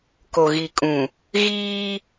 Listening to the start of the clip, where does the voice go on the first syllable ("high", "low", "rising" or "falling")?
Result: low